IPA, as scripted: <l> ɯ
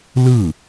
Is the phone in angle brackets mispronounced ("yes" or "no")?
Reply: no